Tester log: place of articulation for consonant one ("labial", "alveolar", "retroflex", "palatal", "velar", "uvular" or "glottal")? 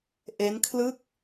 glottal